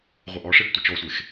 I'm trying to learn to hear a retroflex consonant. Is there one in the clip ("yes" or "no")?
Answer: yes